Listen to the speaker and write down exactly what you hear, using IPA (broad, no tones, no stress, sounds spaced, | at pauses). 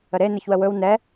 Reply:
ə ɾ e n ɛ ç w ə w ɵ w n ɛ